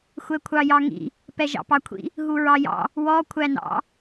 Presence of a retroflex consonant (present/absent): absent